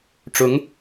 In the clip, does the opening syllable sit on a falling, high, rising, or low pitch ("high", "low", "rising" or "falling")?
rising